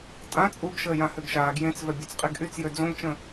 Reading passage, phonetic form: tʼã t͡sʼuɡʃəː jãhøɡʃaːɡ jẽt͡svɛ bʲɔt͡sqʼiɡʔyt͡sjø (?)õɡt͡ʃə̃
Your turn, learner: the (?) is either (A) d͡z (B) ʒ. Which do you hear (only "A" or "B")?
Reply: A